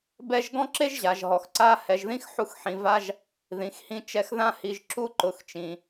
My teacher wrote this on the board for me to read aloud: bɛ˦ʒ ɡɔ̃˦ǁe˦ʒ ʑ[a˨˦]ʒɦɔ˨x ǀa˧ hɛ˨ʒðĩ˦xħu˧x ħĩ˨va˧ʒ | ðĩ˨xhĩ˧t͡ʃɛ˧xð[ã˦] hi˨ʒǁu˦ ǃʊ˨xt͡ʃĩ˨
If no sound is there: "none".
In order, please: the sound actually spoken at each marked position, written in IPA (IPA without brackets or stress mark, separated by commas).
a˨, ã˦